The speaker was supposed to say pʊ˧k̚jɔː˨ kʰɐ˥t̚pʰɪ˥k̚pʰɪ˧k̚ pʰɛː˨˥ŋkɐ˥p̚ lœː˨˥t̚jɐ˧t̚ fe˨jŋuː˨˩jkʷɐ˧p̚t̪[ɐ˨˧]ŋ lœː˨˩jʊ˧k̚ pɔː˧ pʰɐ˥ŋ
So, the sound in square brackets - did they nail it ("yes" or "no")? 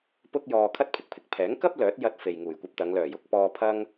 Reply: yes